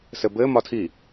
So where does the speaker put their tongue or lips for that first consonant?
tongue tip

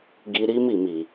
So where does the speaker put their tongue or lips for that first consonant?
velum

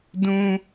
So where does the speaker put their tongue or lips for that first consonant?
tongue tip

